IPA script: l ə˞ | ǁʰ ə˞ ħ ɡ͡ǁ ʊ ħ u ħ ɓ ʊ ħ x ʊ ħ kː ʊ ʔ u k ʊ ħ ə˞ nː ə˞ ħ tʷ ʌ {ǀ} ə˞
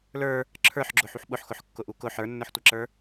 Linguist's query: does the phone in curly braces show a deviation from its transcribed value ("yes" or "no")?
yes